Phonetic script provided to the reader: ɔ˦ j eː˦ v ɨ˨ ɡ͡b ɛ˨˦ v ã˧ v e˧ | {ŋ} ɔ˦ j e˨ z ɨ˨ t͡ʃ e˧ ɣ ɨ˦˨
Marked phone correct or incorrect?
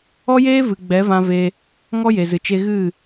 correct